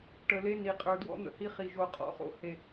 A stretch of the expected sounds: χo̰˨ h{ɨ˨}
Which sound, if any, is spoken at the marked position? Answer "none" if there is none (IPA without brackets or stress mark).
e˨